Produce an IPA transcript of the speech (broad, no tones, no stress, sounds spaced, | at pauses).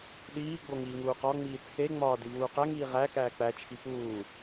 ɗ iː ɡ͡b o ŋ iː ŋ uː q ɒ ŋ͡m iː t͡sʰ e ŋ͡m ɒː d i v uː q æ ŋ iː ʁ æ k æː k͡p æ t͡ʃʰ i p uː